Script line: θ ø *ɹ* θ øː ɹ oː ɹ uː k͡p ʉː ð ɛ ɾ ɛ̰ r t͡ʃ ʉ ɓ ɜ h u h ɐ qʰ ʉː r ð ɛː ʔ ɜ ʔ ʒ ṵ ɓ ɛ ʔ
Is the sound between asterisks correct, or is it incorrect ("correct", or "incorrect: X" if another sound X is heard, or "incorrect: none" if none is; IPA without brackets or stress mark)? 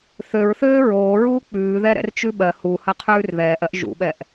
correct